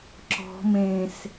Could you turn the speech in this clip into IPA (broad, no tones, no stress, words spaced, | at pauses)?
ǁɔ̤ mẽs